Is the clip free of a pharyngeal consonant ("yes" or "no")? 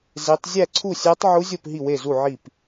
no